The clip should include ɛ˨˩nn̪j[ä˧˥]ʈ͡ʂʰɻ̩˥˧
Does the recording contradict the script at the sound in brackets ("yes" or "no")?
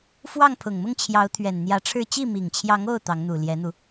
no